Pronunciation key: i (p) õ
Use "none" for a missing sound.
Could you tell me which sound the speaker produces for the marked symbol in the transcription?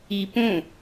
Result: p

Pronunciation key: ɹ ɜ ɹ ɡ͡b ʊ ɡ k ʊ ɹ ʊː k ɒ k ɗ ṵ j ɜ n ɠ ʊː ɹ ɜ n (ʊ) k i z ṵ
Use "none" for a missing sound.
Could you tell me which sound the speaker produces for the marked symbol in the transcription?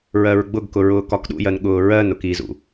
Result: ʊ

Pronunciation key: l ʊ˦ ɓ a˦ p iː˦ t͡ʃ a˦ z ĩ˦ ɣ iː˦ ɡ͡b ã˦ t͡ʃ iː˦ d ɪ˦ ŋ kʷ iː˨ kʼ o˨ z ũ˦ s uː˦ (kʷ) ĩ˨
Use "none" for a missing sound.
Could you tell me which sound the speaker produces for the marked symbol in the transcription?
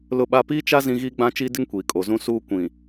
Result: kʷ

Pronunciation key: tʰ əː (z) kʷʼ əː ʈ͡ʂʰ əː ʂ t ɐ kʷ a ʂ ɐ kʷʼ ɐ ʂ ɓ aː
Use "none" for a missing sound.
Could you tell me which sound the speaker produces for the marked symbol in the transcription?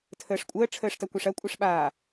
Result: ʂ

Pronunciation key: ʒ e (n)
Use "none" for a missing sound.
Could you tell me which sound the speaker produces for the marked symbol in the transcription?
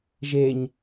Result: ɲ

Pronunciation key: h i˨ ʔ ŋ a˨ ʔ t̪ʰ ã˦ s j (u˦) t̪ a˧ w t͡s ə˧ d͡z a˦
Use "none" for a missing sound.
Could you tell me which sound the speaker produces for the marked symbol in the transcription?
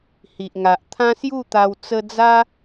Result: u˥˧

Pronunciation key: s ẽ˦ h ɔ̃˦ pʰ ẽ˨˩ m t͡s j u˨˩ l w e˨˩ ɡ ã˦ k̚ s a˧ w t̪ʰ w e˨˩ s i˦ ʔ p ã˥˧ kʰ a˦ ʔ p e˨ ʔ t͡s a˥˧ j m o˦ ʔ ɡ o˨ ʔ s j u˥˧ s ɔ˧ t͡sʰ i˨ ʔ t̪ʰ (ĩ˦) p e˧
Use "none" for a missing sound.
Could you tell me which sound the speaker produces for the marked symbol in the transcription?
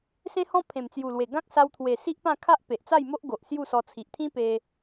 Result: ĩ˦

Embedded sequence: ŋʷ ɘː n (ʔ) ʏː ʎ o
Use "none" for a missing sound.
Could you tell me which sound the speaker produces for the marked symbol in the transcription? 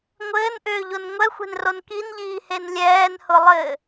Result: ʔ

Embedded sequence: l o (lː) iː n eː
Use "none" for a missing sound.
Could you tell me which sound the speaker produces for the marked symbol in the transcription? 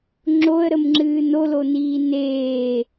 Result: n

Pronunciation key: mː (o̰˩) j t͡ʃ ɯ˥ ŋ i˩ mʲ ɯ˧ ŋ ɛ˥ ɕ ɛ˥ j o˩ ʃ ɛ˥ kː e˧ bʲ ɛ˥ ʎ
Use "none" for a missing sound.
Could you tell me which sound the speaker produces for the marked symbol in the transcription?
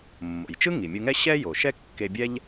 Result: o̰˩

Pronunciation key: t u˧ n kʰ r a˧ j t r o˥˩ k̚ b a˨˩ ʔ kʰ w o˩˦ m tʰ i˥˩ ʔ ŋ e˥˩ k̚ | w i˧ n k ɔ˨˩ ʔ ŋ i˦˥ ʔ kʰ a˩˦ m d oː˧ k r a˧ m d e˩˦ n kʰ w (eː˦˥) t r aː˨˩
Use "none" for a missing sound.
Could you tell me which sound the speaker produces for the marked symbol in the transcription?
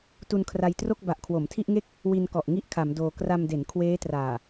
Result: eː˦˥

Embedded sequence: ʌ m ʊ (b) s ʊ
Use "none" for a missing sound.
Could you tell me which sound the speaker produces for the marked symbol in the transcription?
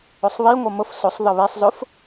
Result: f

